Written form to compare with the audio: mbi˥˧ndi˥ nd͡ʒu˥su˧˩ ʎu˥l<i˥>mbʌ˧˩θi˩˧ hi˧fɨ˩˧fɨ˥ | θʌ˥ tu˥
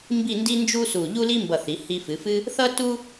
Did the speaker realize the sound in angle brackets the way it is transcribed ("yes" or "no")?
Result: yes